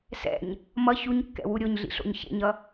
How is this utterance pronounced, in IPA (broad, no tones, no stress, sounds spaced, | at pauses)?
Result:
s ɛ̰ ɲ | m ʌ ç u ɲ kː ɛ̰ w u ɾʲ o ɲ ɮ ḭ ɬ o̰ ɲ ç ḛ ɲ ʌ